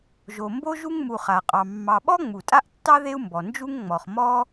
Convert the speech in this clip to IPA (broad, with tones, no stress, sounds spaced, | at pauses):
ʒ o˨ m b o˥ ʒ u˦ ŋ m u˨ χ a˩ qʼ ɑ˨ mː ɑ˨ ɓ ɔ˥ ŋ͡m u˩ tʼ a˥ ʔ tː ɑ˥ ð e˦ u̯ m b ɔ˩ n d͡ʒ u˥ ŋ ŋ͡m ɔ˩ χ m ɔ˥